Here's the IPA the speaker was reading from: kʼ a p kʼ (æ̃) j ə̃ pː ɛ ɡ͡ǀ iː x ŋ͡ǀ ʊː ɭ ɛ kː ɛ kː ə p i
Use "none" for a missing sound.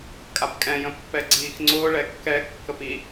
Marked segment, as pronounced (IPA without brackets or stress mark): ɛ̃